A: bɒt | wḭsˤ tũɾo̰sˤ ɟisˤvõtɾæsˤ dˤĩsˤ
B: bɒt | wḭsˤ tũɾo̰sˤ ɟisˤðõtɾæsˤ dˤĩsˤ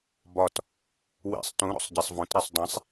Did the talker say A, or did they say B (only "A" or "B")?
A